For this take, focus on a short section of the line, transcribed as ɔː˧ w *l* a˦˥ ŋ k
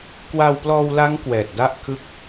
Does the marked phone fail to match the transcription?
no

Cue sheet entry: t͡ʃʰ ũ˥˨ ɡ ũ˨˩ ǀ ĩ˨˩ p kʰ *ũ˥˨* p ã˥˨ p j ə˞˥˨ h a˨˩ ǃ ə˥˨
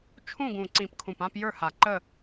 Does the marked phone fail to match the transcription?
yes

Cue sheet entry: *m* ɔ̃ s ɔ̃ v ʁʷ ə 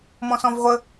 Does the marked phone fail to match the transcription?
no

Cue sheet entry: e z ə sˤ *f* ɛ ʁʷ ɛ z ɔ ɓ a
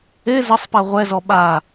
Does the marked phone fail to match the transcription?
yes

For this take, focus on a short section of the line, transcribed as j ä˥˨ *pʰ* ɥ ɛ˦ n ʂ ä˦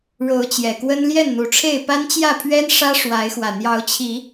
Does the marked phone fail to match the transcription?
no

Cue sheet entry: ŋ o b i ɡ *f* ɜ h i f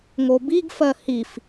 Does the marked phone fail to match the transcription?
no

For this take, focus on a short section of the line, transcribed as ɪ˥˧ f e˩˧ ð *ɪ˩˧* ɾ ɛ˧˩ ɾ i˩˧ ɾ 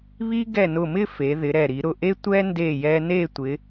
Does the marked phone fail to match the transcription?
no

